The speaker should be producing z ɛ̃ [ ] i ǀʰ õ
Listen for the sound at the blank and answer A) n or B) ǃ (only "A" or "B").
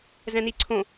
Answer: A